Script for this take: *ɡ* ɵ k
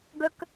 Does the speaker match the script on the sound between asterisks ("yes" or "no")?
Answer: yes